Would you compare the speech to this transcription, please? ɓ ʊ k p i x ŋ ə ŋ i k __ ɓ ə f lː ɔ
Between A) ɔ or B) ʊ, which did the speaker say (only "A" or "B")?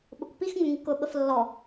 B